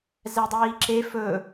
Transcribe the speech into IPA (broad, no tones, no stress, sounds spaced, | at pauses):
z ɛ dˤ iː ǁ e f ɵ